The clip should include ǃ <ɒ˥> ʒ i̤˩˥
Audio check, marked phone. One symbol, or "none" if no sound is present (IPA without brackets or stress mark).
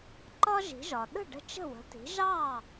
ɒ˥